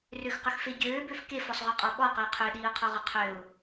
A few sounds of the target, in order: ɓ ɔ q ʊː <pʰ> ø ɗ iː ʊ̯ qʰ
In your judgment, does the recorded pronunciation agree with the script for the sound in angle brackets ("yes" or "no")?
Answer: no